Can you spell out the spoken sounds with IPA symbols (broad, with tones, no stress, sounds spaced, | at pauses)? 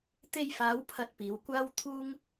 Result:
t̪ e˧ j f aː˨˧ w pʰ ɐ˨˥ t̚ p iː˨˧ w kʷ aː˥ w t̪ʰ uː˥ ŋ